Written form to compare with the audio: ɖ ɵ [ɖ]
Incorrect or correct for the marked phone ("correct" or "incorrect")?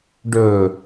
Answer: incorrect